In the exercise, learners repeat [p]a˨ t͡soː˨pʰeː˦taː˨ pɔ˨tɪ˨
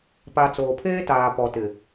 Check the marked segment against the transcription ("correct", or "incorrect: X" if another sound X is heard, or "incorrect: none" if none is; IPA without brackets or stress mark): correct